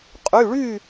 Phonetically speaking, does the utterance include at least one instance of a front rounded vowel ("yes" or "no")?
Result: yes